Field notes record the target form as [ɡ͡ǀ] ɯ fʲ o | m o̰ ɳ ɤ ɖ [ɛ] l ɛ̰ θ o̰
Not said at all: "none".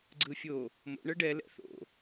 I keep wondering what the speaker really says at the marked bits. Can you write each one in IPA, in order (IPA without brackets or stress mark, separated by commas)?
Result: ɡ͡ǀ, ɛ